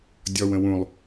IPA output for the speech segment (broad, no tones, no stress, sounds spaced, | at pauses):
dʲ ɔ w ə̃ w ũ lˠ